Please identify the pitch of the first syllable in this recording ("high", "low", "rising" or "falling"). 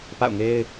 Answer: falling